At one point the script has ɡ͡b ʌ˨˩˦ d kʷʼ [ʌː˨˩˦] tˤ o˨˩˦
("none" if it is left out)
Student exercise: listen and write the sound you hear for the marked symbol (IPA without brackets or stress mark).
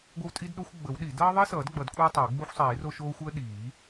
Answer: ʌː˦